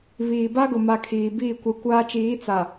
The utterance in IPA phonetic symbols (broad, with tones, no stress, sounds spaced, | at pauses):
β iː˨ b a˦ ɡ ʊ˨ m a˨ kʰ iː˨ b iː˦˨ kʷ ɛ˨ kʷ aː˦ t͡ʃ iː˨˦ t͡s a˨